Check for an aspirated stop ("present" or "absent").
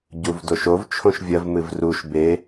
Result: present